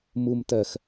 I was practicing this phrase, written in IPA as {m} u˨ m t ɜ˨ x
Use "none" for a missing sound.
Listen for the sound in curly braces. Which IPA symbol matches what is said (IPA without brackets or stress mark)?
m